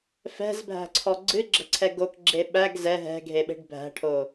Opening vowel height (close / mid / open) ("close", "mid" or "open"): mid